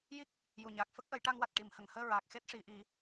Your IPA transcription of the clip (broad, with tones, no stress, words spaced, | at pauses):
ji˦˥k̚ | ju˨˩ɲaː˨˩k̚ fə˦˥k̚ʔə˨˩˦jʈa˧ŋwa˨˩t̚ ʈi˨˩˨mhə˨˩˨ŋhəː˧ ɹaː˨˩k̚xe˦˥t̚ʂi˨˩˨ʔi˨˩˦